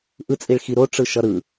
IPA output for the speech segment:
ʔ ɯ t͡sʼ i ɭ x i ɾ o ʈ͡ʂ ɯ ʃ ʌ ɾ ɯ

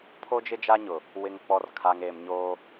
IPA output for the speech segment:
pʰ o˦ d͡ʒ ɪ˦ d͡ʒ a˦ ɲ ʊ˨ | w ɪ˨ ŋ k͡p ɔ˨ r kʰ a˨ ŋ eː˨ m ɲ oː˦

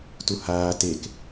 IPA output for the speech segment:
t u h aː t e k

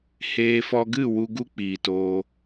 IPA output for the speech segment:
h eː˧ f ɔ˧ ɡ ɨ˦˨ w u˦ ɡ u˦ k͡p iː˨ t oː˧

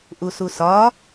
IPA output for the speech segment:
ʔ u s u s ɒ

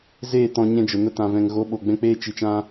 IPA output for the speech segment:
z eː˦˨ t ɔ̃˧ ɲ ɛ̃˧ d͡ʒ ə˨ n ə˧ t ã˨ v ɛ̃˨ ŋ ɣ o˨˦ ɓ o˨ ɡ͡b ɛ̃˧ k͡p eː˧ t͡ʃ i˨ t͡ʃ ã˧

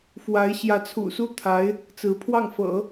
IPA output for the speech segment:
f w a˧˥ ɪ̯ ɕ j ä˧˥ t͡sʰ ṵ˨˩ s u˥˩ t̪ʰ a˧˥ ɪ̯ | t͡s ɹ̩˧˥ pʰ w ɑ˥˩ ŋ f ɤ̰˨˩˦

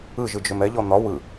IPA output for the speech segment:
ɯ ʒ ɯ d͡ʒ ʏ m ɛ ʎ ɔ n̪ ɒ w ɯ

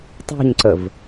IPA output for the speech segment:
tˤ ṳ ɲ ǀ ə v

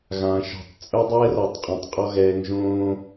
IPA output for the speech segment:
ɣ ãː˨ ʃ ɔ̤˨ tˤ t͡sʼ œ˦ dˤ ɛː˦ r ɔ˨ tˤ qʼ ɛ̃˨ tˤ qʼ ɔ˦ ɣ ɛː˧ ŋ ʒ õː˦

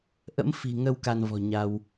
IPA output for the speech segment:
ʔ ə̰˧˥ m f i̤˨˩ ŋ ə˧ w k a˧ n v ɔ̤˨˩ ɲ a˧ w

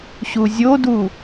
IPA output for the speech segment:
ɕ u zʲ o d u

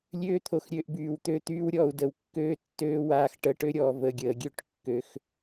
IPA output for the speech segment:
lʲ øː˦ t̪ʰ o˨ x ɾʲ ø˨˦ ʔ b yː˨ w t̪ ø˧ t̪ yː˦ w ɾʲ ɔː˧ u̯ d ə˨ w kː øː˦ tː øː˦ w aː˧ x ʈ əː˧ ʈ ø˦ ɾʲ ɔː˨ v ə˨ ɡʲ əː˨ ɡʲ ø˦˨ ʈ kː ø˨ x

